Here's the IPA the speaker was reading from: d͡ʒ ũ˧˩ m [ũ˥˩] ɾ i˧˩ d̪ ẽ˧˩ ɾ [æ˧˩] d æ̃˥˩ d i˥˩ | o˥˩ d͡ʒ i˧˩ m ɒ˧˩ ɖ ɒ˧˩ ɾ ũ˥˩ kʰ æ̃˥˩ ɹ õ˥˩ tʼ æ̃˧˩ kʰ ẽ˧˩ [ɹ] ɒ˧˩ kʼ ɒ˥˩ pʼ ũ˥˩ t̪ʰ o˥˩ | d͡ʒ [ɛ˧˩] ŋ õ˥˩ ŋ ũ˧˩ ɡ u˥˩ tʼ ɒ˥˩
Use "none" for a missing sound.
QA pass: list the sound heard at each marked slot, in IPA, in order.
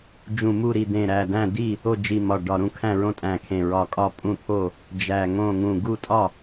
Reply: u˥˩, æ˧˩, ɹ, æ˧˩

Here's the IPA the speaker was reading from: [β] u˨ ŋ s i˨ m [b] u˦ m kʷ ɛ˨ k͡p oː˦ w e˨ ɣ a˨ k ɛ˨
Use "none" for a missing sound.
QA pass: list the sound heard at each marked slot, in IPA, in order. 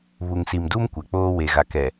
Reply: β, d

